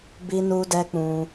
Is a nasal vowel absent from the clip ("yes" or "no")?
no